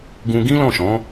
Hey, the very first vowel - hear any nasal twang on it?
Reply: yes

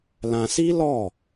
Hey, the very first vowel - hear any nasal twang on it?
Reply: yes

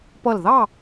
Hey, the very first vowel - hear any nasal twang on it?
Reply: no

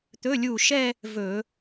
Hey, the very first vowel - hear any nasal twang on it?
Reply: no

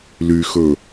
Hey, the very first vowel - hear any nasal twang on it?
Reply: no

